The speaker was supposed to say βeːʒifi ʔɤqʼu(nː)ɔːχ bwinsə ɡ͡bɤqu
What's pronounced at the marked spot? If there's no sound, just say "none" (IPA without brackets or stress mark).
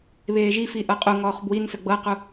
ŋ